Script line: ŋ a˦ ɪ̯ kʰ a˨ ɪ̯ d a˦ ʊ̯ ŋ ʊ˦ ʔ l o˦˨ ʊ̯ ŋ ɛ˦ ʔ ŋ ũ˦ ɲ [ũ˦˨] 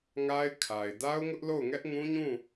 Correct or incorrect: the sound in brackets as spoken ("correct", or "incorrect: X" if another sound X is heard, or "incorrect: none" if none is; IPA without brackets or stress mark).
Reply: correct